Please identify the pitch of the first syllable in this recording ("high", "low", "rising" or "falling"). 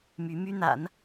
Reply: rising